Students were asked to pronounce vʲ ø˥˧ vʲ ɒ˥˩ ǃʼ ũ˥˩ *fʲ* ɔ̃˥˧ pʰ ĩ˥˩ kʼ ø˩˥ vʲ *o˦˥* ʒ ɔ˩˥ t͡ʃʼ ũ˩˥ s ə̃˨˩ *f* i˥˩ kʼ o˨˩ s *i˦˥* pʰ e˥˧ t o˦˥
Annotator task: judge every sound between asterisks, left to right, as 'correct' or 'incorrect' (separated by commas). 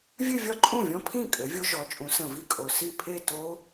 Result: incorrect, correct, incorrect, incorrect